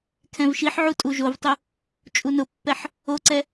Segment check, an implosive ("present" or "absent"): absent